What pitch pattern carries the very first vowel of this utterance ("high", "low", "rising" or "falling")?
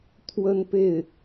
high